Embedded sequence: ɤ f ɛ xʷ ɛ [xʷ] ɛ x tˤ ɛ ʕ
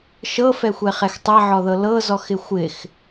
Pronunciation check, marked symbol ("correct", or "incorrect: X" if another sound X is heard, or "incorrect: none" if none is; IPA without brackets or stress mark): incorrect: χ